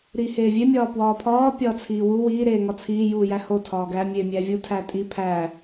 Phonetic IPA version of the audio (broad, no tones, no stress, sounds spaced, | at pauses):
ɾ i h eː vʲ e mʲ ɒː p w ɒː pʰ ɒː pʲ ɒː t͡sʰ iː w u w iː ɾ eː ŋ ɒ t͡sʰ iː j uː j æ h o tʰ ɒː ɡ æ mʲ eː mʲ æː vʲ u tʰ æ tʼ i pʰ æ